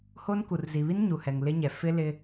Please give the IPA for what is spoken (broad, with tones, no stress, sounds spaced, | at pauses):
h o˦ n k u˨ r z i˨ β i˦ n ɲ u˨ h ɛ˨ ŋ l ɪ˦ ɲ ɛ˨ f ɪ˦ l ɪ˦